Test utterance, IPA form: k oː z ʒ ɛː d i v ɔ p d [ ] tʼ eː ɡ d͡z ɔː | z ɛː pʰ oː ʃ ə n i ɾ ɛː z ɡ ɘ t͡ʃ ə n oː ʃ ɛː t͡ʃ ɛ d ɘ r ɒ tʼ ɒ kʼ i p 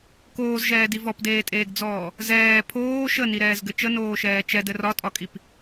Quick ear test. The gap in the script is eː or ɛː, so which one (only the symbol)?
eː